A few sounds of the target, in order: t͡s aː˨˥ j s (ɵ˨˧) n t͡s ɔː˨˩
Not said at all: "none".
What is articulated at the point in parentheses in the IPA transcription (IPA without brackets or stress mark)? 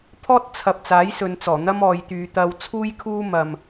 ɵ˨˧